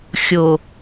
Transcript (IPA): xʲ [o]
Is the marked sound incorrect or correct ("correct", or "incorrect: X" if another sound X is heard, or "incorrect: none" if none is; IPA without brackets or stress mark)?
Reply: correct